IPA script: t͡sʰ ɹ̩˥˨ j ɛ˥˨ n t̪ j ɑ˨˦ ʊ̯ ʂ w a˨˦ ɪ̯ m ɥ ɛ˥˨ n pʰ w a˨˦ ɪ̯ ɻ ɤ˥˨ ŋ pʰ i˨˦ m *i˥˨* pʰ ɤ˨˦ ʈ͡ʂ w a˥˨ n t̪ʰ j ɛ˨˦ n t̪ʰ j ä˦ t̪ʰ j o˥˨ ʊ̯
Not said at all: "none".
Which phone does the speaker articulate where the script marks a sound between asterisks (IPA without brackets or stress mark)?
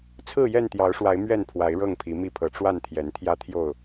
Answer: i˥˨